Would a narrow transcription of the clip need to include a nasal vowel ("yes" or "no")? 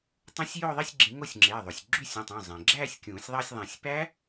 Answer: yes